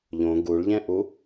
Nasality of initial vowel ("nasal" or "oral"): nasal